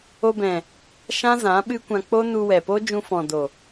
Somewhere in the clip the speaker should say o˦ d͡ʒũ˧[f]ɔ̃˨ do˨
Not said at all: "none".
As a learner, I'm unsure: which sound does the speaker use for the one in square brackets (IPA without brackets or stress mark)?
f